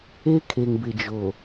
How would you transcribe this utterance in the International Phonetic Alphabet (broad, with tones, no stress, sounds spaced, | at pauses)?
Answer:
e˦ kʰ e˨ ŋ b ɪ˨ d͡ʒ o˨